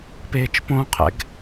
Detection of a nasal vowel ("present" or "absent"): present